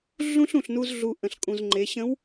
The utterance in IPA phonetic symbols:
ɮ ũ˥ ɬ ũ˩ ɬ n u˧ z ɮ u˩ ʔ ə̃˩ ɬ kʼ ũ˩ z ŋ͡ǃ e˩˧ ɕ ə̃˧˥ w

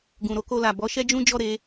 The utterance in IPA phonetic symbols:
ɡ ũ˨ ɾ o˨˦ k o˧ l a˨ b ɔ˨˦ ʃ ɛ˦ d͡ʒ ũ˦ d͡ʒ ɔ˦˨ ɾ e˧

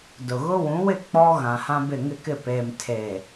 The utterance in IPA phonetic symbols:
d ʊ˨ ɣ ʊ˦ w ũ˨˦ w ɪ˦˨ k͡p ɔ˦ ɣ ã˨ h ã˦ b ɪ˦˨ ŋ ɪ˦˨ k ɪ˦˨ p eː˨ m tʰ eː˨

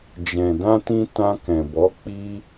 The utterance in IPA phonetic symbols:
d͡ʒ ɛ̃˨ d ã˧ t ĩ˧ t ã˧ k ɛ̃˨ b ɔ˨˦ k͡p i˧

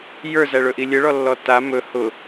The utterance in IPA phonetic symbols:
j ə˞ z æ ɭ ɵ ʔ i lʲ ə ɭ ɔ lː ɔ t a m ɵ h ʊ

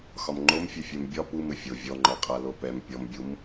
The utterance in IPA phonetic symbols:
x ɒ m ŋ͡ǃ o m fʲ ɘ fʲ ɛ m bʲ ɒ p u m ɘ fʲ o vʲ ɔ ŋ͡ǃ ɔ qʼ a l o p ɛ m pʲ ɔ m bʲ u m

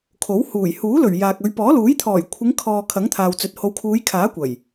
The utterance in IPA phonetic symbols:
kʰ o˨˥ w h uː˨˩ j h uː˨˥ l ɵ˨˩ ɥ j aː˨ k̚ ɵ˨˧ ɥ p ɔː˨˥ l uː˨˥ j t̪ʰ ɔː˨˩ j kʷʰ ɪ˨˧ ŋ kʰ ɔː˨ kʰ ɐ˨˥ ŋ t̪ʰ aː˨ w t͡s ɵ˨˥ t̚ h o˨˧ w kʰ uː˨˧ j kʰ aː˨˥ kʷ ɐ˨˩ j

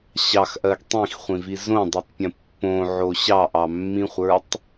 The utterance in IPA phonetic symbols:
ɕ ɑ x ʔ ɜ ɡ tˤ ĩ x χʷ ĩ v i z õ dˤ i tˤ pʲ ə̃ pː õ ʕ o ɕ ɑ ʔ ɑ mː ĩ χʷ ə˞ tˤ

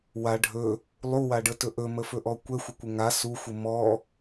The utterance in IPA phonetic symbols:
w a ɖʱ ɵ | lˠ u w a ɖ ə t ɵ ʔ ɵ m ə f ɵ ʔ ɔ kʷ ɛ xʷ ə kʷ ə ŋ a s u xʷ ə m ɔ

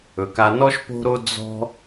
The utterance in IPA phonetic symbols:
ɵ˩ k a˨ n ɔ˦ ʃ p o̤˦ ɾ o˦ d͡z ɔ̤˥

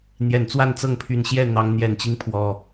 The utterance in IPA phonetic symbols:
n̪ j ɛ˨˩ n t͡s w a˥˨ n t͡s ɤ˥˨ ŋ pʰ y˨˩ n ɕ j ɛ˥˨ n̪ ɑ˨˦ ŋ n̪ j ɛ˨˩ n t͡ɕ i˦ ŋ pʰ w ɔ˨˩

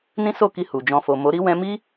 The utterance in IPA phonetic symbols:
n ĩ˦ s o˦˨ k i˧ h u˨ d͡ʒ ɔ̃˧ f o˨ m o˨˦ ɾ i˦ w ɛ̃˦ m i˦

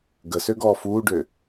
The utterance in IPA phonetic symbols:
ɡ ə s ø ɡ ɔː f uː ɖ ø

